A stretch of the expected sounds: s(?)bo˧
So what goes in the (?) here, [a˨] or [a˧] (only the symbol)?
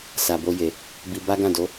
a˨